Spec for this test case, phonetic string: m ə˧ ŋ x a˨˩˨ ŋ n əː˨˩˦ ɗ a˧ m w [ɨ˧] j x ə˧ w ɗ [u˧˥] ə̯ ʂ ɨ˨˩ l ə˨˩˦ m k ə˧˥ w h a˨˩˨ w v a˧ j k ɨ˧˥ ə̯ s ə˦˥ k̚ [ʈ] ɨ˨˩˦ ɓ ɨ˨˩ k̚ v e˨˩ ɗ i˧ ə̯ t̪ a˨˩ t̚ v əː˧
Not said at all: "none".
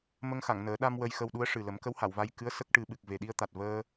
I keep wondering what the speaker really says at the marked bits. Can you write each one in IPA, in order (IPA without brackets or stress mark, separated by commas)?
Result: ə˧, u˧˥, ʈ